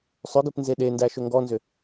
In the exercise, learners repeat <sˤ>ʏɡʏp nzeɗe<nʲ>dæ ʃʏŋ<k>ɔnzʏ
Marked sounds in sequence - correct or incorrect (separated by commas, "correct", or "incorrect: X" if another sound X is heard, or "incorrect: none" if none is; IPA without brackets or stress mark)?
correct, incorrect: n, incorrect: ɡ